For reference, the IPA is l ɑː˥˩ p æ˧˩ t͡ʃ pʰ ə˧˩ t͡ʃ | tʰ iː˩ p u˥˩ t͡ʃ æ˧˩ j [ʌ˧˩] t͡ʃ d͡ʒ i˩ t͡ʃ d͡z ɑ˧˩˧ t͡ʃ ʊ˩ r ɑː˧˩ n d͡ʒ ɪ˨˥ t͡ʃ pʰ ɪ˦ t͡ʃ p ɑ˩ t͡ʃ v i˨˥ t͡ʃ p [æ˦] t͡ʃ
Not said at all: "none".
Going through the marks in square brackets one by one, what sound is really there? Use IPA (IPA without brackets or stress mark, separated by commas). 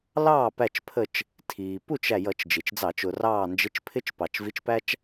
ʌ˧˩˧, æ˦